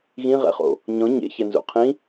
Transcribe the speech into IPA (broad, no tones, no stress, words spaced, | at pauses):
ɣĩʁɛ̰χo̰ | ɲɔ̃ ɲḛçɛnzṵ qʰĩ